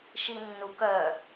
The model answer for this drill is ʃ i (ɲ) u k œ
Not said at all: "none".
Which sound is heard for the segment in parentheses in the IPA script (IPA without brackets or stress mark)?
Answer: nː